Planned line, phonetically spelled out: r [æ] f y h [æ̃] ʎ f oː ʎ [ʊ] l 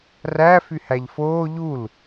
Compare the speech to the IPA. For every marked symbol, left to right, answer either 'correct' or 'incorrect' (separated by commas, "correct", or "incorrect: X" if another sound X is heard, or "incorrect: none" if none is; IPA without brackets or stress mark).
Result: correct, incorrect: æ, incorrect: u